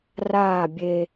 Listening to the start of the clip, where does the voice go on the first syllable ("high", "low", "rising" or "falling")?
falling